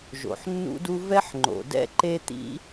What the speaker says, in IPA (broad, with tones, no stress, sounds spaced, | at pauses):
ʒ o̰˩ ħ nː ṵ˥ d u˥ v ɛ˥ ħ ŋ͡ǃ o̰˩ d ɛ̰˥ ǃ e˥ t̪ ḭ˥